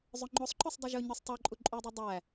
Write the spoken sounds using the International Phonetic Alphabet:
zˤ ɵ ŋ͡ǃ o sˤ ǃ ɵ sˤ dˤ ʉ ʒ ɵ ɲ ø sˤ tˤ o ǃʼ u ǃʼ u dˤ ʉ dˤ æ

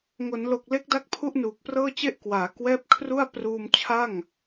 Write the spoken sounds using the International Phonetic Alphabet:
ŋ o˩˦ n l o˨˩ k̚ l e˦˥ k̚ d a˥˩ k̚ pʰ u˥˩ ʔ n uː˨˩ k̚ p r ɤː˥˩ t͡ɕ e˥˩ ʔ k w aː˩˦ k w ɛː˦˥ p̚ kʰ r u˥˩ a̯ p r uː˧ m t͡ɕʰ a˥˩ ŋ

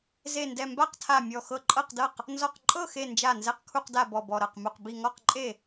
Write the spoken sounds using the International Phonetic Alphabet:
z e˧˩ n d ɛ˧˩ m b a˥˩ q tʰ a˧˩ mʲ ɔ˧˩ x ɤ˧˩ ǃʼ ɤ˥˩ q d ɤ˥˩ q | n z ɔ˧˩ q ǃʼ ɤ˥˩ x e˧˩ n d͡ʒ a˥˩ n z ɛ˧˩ q kʰ u˧˩ q d a˧˩ b ɔ˧˩ b ɔ˧˩ ɾ ɤ˧˩ q m u˧˩ q b i˧˩ ŋ ɔ˥˩ q ǃʼ e˥˩

